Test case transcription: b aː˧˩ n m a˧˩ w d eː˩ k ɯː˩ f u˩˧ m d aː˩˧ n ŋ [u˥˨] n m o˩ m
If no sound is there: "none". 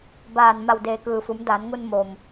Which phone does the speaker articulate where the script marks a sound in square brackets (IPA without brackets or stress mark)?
u˧